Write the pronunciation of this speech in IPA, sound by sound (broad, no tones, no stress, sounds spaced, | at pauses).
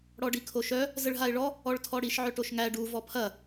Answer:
ɽ ɔ ɖ i kʰ o ʃ œ | z ə ɭ ɦ a ɪ̯ ɭ ɔ | ɔ ɭ tʰ ɔ ɽ i ʃ ʕ œ ʈ o ʃ ŋ æ ɖ u v ɔ pʰ ɐ